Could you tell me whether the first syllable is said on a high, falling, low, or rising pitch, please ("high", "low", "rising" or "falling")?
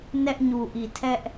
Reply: high